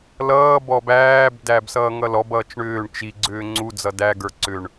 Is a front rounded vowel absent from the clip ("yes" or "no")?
no